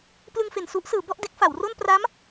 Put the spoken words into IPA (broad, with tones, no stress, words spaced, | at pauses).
plɯ˧ŋfe˨˩n su˦˥ʔsɯː˩˦ bɔ˥˩ʔde˦˥k̚ fa˩˦wro˥˩n pra˦˥m